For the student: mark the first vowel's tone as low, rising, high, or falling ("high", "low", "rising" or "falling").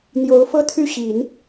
rising